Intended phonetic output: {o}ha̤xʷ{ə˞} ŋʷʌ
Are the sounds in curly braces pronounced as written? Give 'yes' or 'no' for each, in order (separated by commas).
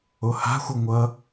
yes, no